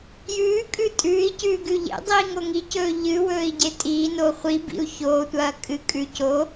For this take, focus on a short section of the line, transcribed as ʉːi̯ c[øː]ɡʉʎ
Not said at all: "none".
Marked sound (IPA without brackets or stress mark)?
ʉː